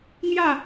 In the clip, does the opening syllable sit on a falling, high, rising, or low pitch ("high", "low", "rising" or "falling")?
falling